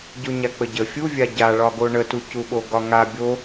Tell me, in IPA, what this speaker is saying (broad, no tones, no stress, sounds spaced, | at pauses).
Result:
ɟ o ɲ a k͡p ə ɟ ə fʲ u vʲ a ɟ a ɭ ɒ ɡ o ɳ ə t u c u ɓ o ɡ ɒ ŋ a bʲ o